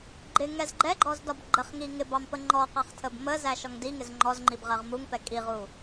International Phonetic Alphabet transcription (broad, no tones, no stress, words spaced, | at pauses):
ɡ͡ǃɪ ŋɛzɡ͡ǃɛɡ͡ǃɔz dɒbɡ͡ǃəχŋi ŋɪ bɑmpəŋ͡ǃɔqɑχ tʰəbməzæ ʃɔŋdiŋɪz ŋ͡ǃɔzŋ͡ǃib ʁɜʁmuŋpɛ kʼiʁu